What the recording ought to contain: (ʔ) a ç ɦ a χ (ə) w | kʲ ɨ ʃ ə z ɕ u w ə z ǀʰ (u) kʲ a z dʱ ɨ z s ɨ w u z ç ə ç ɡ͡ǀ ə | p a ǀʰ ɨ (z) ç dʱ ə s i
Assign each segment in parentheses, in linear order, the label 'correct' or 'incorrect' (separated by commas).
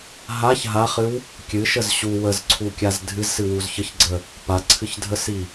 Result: incorrect, incorrect, correct, incorrect